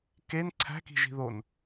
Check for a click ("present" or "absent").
present